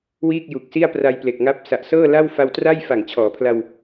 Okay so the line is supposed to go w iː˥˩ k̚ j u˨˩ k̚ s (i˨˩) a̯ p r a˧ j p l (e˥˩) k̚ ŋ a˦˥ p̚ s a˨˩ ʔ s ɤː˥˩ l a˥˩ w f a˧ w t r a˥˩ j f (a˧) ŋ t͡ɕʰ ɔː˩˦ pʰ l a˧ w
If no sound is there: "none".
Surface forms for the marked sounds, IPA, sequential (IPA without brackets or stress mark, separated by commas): i˥˩, e˨˩, a˨˩